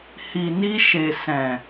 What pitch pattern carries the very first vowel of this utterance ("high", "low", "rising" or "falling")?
low